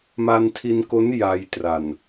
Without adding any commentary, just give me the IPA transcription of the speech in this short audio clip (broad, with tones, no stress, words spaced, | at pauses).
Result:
ma˧ntʰi˧nko˦˥n ja˧jtra˨˩n